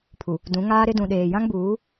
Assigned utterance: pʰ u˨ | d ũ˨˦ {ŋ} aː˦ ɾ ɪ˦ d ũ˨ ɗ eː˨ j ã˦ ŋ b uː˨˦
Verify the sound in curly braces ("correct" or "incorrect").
correct